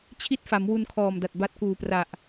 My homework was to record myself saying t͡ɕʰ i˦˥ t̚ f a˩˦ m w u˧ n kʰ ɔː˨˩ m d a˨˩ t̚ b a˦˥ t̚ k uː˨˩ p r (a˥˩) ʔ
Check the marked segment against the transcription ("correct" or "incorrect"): incorrect